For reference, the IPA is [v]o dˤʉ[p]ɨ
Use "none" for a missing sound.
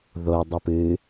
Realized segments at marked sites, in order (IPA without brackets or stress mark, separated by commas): ð, p